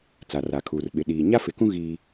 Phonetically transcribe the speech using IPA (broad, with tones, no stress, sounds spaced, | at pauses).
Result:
t͡s a˨ r a˨ kʰ uː˨ r ɓ ɪ˨ ɗ iː˨ ɲ a˦ f ɪ˨˦ k ũ˦ ɣ i˦